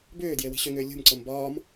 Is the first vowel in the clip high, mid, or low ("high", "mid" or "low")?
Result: high